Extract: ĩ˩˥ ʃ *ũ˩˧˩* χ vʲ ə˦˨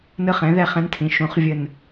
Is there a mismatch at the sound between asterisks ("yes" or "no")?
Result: yes